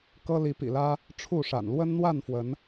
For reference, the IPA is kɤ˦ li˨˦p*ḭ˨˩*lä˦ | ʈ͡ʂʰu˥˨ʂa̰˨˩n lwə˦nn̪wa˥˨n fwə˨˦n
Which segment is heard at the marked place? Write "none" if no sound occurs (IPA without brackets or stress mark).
ḭ˨˩